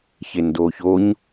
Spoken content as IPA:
çendoːçoɲ

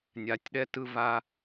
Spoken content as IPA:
nʲa˨tʲɗɛ˦tɯ˦ va˥

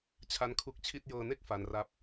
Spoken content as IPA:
t͡ɕʰa˦˥nkʰu˦˥k̚t͡ɕʰi˥˩t̚ jɤː˧ne˥˩k̚ fa˦˥nra˥˩p̚

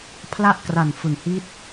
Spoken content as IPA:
pʰla˥˩ʔkra˨˩n fɯ˨˩ŋhi˦˥t̚

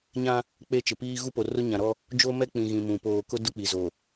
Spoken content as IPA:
ɲã˦ | k͡pe˦˨t͡ʃɪ˨piː˦ ɣu˦po˨rʊ˦ ɲã˨ɾɔ˦ | d͡ʒo˦mɛ˦k͡pĩ˨ɣĩ˨ mũ˨ poː˨ kʊ˦ dʊ˦k͡pi˨zo˨

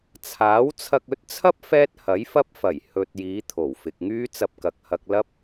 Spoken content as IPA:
t͡sʰaː˨˥w t͡sʰɐ˧k̚ɵ˨˥t̚t͡sʰɐ˥p̚ fɛː˥t̚hɐ˨˥jfɐ˥p̚fɐ˨˩j hɵ˨t̚ jiː˨˧t̪ʰo˨˩wfɪ˨k̚ŋyː˥ t͡sɐ˧p̚kɐ˨k̚hɐ˧k̚ lɐ˥p̚

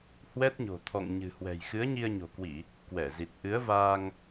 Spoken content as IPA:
hwɛ˦˥t̚ɲo̤˨˩t̪ʰɔ̰˧˨ŋ ɲɨ̤˨˩hwɛ̤˨˩j xɨ˨˦ə̯ɲi˧ə̯ɲo̤˨˩kwi˧˩˨ | kwɛ˧˩zi˨˩t̚ ʔɨ˨˦ə̯vaː˧ŋ

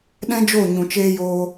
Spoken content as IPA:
ɗɛ̃˦d͡ʒo˦˨ ɲũ˨ t͡ʃeː˧joː˧

